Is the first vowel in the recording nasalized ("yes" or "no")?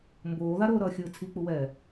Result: no